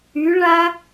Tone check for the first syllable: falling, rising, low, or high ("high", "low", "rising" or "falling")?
rising